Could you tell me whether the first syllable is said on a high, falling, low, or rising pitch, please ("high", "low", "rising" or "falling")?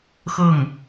falling